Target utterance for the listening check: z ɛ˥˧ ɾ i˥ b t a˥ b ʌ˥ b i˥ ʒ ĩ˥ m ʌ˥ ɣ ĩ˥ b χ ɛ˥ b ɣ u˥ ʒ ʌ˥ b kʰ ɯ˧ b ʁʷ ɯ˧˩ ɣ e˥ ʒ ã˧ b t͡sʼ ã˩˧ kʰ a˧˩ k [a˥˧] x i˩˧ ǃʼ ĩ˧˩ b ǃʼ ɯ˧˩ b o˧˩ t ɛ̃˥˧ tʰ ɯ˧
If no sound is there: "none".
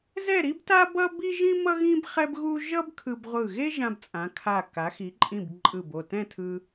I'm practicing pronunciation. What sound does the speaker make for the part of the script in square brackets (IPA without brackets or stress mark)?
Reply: a˩˧